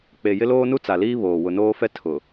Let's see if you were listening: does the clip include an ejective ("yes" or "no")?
no